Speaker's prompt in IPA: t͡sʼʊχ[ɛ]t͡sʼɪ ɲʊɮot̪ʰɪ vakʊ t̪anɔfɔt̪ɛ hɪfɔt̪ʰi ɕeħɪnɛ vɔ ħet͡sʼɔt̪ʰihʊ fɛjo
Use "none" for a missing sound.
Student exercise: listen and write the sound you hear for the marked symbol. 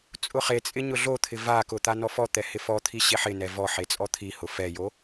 e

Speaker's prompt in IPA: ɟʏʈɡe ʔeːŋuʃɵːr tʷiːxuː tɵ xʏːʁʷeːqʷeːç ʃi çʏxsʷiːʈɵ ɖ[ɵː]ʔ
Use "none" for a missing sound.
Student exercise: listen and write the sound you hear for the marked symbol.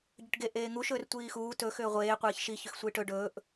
ɵː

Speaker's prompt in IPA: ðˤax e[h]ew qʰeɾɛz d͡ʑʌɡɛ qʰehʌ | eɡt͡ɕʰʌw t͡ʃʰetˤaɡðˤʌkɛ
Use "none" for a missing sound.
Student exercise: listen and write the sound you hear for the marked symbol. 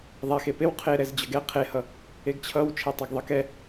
p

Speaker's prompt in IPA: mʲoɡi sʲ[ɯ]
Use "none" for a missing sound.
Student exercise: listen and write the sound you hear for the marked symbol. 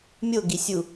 u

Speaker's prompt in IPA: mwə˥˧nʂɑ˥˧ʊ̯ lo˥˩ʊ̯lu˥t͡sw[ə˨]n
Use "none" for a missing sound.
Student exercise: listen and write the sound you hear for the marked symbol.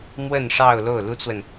ə˨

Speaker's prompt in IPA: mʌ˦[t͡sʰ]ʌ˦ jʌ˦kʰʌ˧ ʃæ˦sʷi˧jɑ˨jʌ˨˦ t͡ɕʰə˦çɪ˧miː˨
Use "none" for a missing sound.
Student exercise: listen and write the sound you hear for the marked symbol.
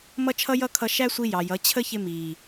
t͡ʃʰ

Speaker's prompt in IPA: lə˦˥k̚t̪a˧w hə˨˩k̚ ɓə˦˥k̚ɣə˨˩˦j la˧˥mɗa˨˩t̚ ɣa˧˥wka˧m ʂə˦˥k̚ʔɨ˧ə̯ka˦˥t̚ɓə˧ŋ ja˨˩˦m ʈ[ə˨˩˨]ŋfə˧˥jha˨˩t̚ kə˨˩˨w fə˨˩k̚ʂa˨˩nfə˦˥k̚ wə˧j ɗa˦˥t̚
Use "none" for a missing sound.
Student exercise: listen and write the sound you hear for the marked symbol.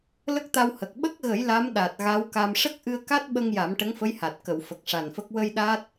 ə˧˥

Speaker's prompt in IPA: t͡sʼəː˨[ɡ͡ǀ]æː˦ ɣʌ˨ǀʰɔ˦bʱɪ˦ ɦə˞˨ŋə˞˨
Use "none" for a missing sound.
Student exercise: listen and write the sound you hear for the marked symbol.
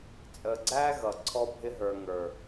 ɡ͡ǀ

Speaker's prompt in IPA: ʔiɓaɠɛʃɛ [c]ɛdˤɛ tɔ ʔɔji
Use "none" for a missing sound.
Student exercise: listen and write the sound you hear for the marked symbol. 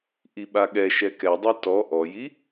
k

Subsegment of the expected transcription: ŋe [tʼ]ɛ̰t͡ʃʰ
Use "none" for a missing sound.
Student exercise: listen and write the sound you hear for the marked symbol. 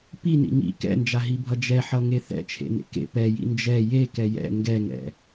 θ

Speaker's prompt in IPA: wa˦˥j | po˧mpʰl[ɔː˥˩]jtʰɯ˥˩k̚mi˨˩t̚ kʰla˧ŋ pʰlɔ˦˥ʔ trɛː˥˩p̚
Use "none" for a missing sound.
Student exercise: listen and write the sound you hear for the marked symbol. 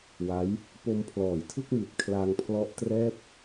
ɔː˨˩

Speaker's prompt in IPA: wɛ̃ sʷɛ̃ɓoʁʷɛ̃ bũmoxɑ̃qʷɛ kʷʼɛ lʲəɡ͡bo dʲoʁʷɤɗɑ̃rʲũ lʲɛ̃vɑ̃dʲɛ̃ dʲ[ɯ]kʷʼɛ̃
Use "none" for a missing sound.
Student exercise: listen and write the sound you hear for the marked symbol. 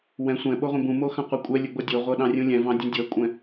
ɤ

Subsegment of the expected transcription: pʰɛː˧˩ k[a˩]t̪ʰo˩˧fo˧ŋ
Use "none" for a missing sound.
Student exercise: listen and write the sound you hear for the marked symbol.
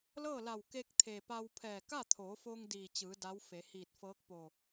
a˥˨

